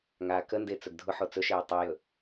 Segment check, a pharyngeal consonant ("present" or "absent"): present